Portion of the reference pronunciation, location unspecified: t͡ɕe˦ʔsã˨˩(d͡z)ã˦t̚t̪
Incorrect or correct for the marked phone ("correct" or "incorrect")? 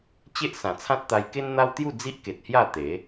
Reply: incorrect